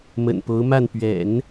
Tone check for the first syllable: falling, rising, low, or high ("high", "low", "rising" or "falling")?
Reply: low